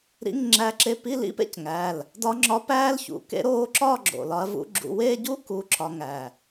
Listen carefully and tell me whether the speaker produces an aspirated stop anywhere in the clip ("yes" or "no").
no